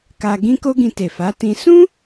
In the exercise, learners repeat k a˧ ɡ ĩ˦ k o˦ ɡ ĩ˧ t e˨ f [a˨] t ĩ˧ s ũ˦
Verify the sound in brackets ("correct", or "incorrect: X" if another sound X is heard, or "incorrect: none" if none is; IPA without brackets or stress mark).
incorrect: a˨˦